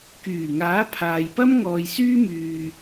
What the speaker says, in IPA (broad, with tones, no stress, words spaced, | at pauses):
kyː˨˩ŋaː˨˥pʰaː˨jpɐ˥m ŋɔː˨jsyː˥myː˨